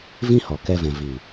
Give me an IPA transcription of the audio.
v ĩ˦ h ɔ˨ k ɛ˧ v ɛ̃˨ v i˨

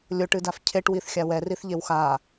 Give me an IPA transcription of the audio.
lʲ o ʈ ɨ d a f cʰ e ʈ w i θ xʲ a w ɛ r i θ ʎ e w x a

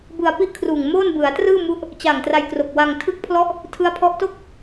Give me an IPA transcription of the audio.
b ɯ˧ a̯ p i˥˩ ʔ kʰ r uː˨˩ ŋ m oː˥˩ n b ɯ˩˦ a̯ t r ɯː˥˩ m u˦˥ ʔ | t͡ɕ a˨˩ ŋ t r a˧ j k r o˨˩ k̚ w a˧ ŋ tʰ ɯ˦˥ k̚ pʰ l ɔ˦˥ ʔ | tʰ ɯ˦˥ a̯ pʰ ɔ˦˥ ʔ t o˥˩ k̚

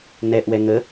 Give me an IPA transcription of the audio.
n ɛ ʔ w ɛ ŋ ə

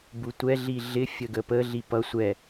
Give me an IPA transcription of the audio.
b u tʷ ɛ ɮ i ɮ ɪ fʲ ə ɡ ə p ə ɮ i p ʌ sʷ ɛ

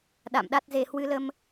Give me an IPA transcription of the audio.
ɗ a̰˧˨ m ɗ a˦˥ t̚ z e˧ h w ɨ˨˦ l ə˧ m

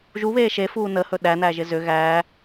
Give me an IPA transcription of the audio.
ʒ u β eː ʃ e f uː n ə h ɵ ɗ æ n æ ʒ ɪ z ʏ ɣ æː

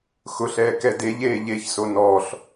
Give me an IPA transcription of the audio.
x ʊ ɬ ɛː k ɛ d e ʎ eː ʎ e ç s o n ɔː ɬ

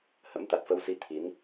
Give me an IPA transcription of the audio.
h ə̰˧˥ m t̪ a˨˩ t̚ f ə˧ w s i˨˦ t̪ʰ i˨˦ n

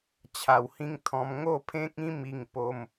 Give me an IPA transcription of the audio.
t͡ɕʰ a˨˩ w h ĩ˧ ŋ t̪ʰ ɔ̃˧ m ŋ o˥˧ pʰ ẽ˦ k̚ ĩ˦ m i˥˧ ŋ p o˦ m

